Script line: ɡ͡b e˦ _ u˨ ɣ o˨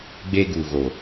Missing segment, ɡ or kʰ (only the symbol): ɡ